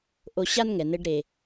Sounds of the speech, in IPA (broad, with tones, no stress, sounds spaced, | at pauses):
ʔ o˧ ɕ a˥ n ŋ ɛ˩ n ɘ˧ ɖ ɾ e˩